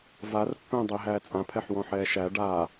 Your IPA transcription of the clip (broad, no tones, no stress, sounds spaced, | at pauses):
v a r pː ɛ̃ː dˤ i ɦ æː t͡sʼ ã pʰ ɛ ħ w ɔ̃ ħ ɛː ʃ æ ɖ a